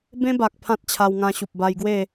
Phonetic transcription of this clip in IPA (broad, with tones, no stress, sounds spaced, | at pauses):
b ẽ˦ b a˨ k̚ pʰ ã˦ t̚ t͡ɕʰ a˧ w ŋ ã˧ ɕ u˨ p̚ b a˧ j ɡ w e˥˧